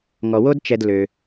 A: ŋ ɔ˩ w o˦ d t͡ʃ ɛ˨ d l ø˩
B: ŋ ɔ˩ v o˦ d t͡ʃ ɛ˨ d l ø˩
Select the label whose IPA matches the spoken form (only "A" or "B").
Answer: A